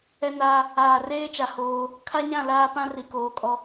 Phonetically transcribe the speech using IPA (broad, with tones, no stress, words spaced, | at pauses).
ɛ˦naː˦ | aː˨reː˦t͡ʃa˨ hoː˦ | kʰa˦ɲã˦˨ laː˦pã˦ ri˨koː˨kʼɔ˦